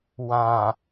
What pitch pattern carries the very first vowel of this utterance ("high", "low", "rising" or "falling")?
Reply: low